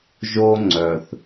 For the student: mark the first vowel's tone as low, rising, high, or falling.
high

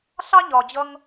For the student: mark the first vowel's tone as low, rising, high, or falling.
high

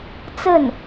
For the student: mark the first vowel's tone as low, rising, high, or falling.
falling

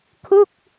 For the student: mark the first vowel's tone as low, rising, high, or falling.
falling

